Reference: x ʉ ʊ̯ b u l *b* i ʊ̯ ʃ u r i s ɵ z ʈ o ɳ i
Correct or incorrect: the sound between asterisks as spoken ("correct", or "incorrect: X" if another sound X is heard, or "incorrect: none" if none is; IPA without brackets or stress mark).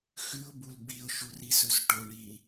correct